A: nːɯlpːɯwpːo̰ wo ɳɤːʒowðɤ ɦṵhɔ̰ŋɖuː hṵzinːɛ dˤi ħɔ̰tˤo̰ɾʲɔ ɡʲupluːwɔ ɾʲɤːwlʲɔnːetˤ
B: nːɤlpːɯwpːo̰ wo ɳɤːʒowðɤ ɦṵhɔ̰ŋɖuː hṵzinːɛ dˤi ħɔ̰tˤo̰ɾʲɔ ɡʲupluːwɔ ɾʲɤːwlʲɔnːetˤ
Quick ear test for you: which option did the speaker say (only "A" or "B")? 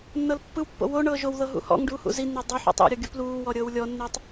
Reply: B